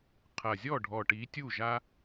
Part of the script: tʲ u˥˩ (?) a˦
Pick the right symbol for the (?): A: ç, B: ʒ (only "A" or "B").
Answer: B